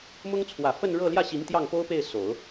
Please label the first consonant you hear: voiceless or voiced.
voiced